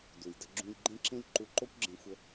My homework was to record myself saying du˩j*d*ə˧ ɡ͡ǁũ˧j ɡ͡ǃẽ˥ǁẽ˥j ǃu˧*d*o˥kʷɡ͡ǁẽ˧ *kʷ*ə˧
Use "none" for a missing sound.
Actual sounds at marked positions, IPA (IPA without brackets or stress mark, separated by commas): d, ǃ, xʷ